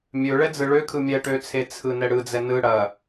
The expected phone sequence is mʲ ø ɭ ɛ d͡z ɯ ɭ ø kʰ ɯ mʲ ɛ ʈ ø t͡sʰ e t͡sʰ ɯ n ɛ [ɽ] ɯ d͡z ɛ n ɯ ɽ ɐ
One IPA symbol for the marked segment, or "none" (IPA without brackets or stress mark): ɽ